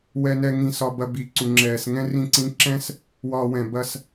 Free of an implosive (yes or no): yes